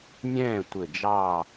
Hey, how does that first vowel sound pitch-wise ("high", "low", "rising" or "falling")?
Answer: falling